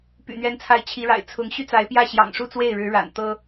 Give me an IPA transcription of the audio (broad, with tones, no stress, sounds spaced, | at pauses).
p y̰˨˩ n̪ ɥ ɛ˧˥ n t͡sʰ a˧˥ ɪ̯ t͡ɕʰ i˧˥ ɻ a̰˨˩ ɪ̯ t͡sʰ ʊ˧˥ ŋ ɕ y˥ t͡s a˧˥ ɪ̯ p j ä˥˩ ɕ j ɑ̰˨˩ ŋ ʂ u˥˧ t͡s w e˥˩ ɪ̯ ɻ ɻ̩˧˥ ɻ a̰˨˩ n t̪ ɤ˥